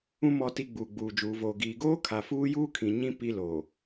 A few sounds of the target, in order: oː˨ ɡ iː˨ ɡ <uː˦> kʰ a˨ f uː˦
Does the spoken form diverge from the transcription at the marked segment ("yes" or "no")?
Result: yes